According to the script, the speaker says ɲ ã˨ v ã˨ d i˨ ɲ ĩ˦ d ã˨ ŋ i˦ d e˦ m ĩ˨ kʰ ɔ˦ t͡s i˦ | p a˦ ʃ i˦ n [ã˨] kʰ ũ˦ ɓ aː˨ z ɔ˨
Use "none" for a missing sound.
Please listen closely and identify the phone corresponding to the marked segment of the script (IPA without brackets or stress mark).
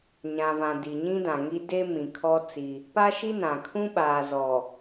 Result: ã˨